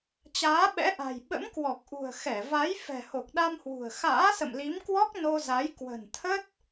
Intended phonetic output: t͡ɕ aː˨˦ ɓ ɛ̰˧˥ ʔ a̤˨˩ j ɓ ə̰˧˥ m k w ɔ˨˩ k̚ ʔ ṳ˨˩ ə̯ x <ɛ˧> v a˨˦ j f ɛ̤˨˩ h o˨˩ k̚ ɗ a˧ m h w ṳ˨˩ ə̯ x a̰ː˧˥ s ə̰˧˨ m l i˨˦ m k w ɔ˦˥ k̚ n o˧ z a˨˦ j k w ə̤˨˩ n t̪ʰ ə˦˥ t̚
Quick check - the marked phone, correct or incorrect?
incorrect